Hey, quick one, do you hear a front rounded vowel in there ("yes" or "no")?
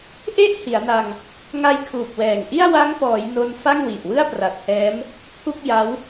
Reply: no